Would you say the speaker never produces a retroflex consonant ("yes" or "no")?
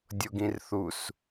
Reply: yes